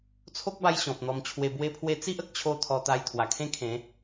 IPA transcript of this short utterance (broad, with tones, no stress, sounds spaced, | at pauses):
t͡sʰ o˦ k̚ b a˧ j ɕ ɔ̃˨ p̚ n̪ ɔ˧ m t͡ɕʰ w e˧ b w e˧ pʰ w e˧ t͡s i˦ ʔ ə˨ k̚ t͡ɕʰ o˦ t̪ʰ ɔ˧ t̪ a˧ j t̪ʰ w a˨˩ kʰ ẽ˥˧ kʰ ẽ˨˦